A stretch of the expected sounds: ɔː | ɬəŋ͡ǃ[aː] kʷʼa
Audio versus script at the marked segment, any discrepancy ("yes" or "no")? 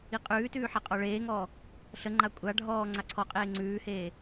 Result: yes